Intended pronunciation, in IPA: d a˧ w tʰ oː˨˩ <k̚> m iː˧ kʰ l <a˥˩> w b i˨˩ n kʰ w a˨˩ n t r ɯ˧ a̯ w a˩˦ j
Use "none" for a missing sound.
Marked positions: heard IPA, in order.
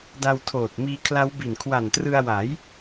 t̚, a˦˥

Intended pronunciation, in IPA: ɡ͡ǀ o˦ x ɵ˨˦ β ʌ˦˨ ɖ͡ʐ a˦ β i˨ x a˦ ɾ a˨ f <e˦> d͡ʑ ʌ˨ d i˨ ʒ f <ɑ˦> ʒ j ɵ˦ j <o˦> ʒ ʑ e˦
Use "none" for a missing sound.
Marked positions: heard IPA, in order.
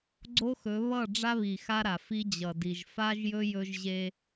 i˦, a˦, ɵ˦

